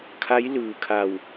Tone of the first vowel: rising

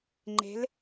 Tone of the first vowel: rising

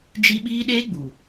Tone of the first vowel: high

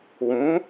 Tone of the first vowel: rising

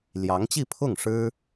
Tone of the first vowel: rising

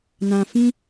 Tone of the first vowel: low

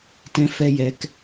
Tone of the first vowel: high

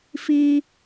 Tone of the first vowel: high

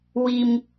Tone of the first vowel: high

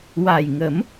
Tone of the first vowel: low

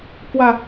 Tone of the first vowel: falling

